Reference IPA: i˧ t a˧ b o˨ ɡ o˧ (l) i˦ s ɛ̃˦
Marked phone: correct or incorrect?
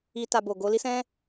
correct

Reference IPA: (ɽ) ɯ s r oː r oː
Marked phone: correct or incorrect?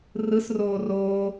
incorrect: r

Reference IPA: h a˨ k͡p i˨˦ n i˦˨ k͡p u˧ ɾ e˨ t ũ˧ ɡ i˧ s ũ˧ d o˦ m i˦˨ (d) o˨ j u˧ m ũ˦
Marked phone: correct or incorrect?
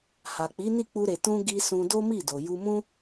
correct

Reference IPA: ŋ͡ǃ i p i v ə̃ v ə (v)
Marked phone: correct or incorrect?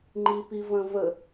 incorrect: none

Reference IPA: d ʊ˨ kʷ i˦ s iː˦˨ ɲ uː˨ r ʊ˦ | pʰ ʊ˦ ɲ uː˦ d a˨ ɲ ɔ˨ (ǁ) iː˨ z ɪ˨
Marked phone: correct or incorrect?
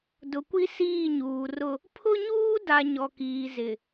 incorrect: k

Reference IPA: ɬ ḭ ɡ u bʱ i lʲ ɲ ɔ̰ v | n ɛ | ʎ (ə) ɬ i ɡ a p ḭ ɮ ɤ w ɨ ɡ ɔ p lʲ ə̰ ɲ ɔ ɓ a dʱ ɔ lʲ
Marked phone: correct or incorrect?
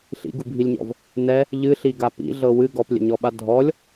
incorrect: ɨ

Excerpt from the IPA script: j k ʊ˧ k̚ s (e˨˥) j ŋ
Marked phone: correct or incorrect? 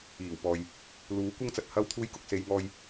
incorrect: e˨˧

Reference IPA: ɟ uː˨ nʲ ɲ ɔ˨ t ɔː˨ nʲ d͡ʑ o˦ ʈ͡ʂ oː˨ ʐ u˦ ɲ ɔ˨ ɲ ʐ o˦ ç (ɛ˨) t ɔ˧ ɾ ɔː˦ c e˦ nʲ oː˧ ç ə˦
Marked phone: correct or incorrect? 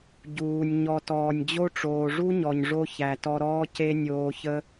incorrect: æ˨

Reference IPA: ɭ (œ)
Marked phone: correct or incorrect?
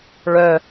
correct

